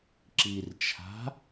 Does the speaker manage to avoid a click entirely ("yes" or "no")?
no